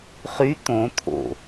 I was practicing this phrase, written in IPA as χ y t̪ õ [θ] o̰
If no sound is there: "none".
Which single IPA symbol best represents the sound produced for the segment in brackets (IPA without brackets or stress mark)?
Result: t̪ʰ